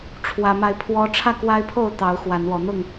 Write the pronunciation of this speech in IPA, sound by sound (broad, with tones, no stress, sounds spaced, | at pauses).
ʈ͡ʂʰ w ä˨˦ m a˧ ɪ̯ pʰ w ɔ˦ ʈ͡ʂʰ ä˥˨ k w a˦ ɪ̯ pʰ o˥˨ ʊ̯ t̪ ɑ˨˦ ʊ̯ x w a˨˦ n w ɔ˨˦ n̪ ʊ˥˨ ŋ